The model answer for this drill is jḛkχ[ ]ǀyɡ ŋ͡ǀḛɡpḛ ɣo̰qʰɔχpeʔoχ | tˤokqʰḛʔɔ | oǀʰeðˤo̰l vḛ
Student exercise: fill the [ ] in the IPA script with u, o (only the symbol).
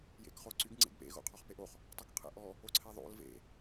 o